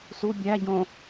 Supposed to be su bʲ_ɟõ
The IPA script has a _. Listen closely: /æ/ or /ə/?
æ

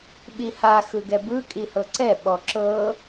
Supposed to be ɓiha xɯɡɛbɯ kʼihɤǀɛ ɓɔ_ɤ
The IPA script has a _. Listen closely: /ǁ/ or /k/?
ǁ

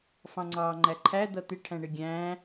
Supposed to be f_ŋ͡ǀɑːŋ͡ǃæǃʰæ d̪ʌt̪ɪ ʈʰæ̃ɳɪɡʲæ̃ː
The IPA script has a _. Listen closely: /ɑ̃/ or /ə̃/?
ɑ̃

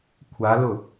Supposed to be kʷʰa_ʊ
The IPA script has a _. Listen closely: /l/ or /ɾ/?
l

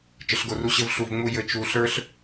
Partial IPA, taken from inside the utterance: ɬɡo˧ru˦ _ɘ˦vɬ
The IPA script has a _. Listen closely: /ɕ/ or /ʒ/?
ɕ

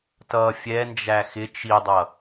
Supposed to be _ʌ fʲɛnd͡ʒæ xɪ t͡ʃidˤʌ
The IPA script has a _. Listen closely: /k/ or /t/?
t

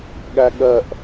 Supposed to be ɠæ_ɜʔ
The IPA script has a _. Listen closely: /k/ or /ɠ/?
ɠ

